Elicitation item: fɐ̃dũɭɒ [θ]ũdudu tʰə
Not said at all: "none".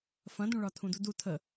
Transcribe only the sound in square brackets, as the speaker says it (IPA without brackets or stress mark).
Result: tʰ